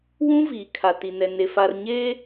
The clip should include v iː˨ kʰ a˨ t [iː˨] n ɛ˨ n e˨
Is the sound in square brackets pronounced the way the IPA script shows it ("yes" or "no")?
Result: no